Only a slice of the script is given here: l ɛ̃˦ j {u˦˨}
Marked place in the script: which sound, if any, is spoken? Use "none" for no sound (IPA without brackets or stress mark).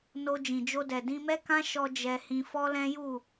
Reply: u˦˨